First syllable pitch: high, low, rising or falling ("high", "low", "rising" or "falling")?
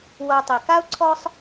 low